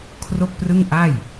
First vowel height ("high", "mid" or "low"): mid